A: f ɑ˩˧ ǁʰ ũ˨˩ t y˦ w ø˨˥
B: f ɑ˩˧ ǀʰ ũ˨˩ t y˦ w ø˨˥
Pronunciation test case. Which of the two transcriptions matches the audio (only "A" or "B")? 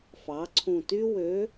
B